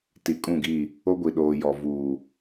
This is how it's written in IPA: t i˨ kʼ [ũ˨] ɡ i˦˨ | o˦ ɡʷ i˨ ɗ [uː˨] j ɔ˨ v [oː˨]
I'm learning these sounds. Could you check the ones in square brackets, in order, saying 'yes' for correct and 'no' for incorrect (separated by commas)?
no, no, no